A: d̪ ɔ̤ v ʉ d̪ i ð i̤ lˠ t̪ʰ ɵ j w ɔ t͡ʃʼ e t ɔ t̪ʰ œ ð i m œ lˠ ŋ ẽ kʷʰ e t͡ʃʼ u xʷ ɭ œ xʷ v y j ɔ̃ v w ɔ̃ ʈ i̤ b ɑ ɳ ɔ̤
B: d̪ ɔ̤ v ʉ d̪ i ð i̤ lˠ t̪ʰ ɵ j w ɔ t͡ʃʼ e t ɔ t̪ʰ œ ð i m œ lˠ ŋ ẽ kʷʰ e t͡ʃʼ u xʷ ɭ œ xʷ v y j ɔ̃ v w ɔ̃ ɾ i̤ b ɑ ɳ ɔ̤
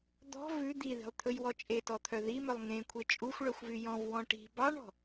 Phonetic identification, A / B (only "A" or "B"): A